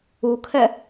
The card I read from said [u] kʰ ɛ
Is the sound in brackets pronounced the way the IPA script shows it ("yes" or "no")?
yes